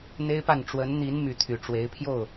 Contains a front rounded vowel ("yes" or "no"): yes